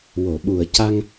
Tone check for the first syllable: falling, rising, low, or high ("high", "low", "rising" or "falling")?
low